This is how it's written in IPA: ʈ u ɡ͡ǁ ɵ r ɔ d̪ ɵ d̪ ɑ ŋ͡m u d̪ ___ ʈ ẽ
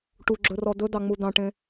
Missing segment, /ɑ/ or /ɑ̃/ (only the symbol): ɑ̃